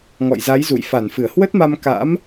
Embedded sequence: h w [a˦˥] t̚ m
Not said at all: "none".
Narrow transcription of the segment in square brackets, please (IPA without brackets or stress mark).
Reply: ə˦˥